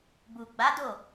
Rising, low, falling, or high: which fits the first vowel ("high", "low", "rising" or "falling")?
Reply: low